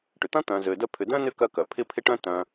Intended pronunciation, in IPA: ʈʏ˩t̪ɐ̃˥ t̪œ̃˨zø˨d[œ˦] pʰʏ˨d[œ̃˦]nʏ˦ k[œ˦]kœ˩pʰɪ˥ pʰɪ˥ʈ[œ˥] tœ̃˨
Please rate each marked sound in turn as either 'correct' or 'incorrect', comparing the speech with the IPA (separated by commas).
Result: correct, incorrect, correct, incorrect